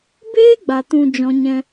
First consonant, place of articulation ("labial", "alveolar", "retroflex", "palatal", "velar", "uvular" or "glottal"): labial